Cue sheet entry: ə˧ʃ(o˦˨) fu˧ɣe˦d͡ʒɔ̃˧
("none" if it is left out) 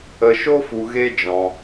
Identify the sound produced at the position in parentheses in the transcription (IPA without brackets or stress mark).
o˦